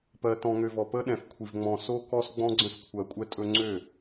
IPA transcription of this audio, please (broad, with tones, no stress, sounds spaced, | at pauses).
p ɜ˨ t ɔ̃˨ ŋ ø˨ v ɔ˨ p ə˦ ɗ ɛ̃˨ f kʷʰ i˨ v ŋ͡m ɔ̃˨ s o˦ k ɔ˦ s ɡ͡b ɔ̃˦ ɡ͡ǀ ə̃˦ s kʷʰ ɜ˨ kʷʼ ɛ˦ tʼ ɵ˦ ŋ͡ǀ ø˦˨